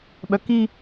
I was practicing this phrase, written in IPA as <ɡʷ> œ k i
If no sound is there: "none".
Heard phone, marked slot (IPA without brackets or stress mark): ɓ